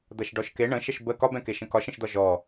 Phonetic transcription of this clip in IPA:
d̪ ɐ ʃ ɖ ɔ ʃ k e ɳ ə̃ ʃ ə ʃ b ə k ɒ b ɛ̃ k e ʃ ə̃ k ɒ ʃ ə̃ ʃ d̪ ɒ ʒ ɔ

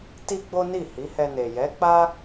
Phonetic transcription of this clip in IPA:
t i˦ ɡ͡b o˦ n i˦˨ h i˨˦ h ɛ˧ n e˨ j ɛ˨˦ k͡p a˦

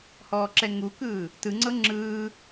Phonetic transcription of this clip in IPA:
h ɔː ǁ ɛ ŋ u k ɯː | t ɯ ŋ͡ǀ ɤ ŋ͡ǁ ɯː

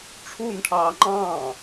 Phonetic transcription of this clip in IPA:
ʈ͡ʂʰ u n ʈʰ ɑː ŋ͡ǃ ɑ̃ː

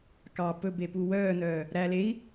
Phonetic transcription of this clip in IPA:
k ɑ p ɵ b e p u w œː n œː | ɾ æ l e i̯

